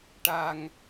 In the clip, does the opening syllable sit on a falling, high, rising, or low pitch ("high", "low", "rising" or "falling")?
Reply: low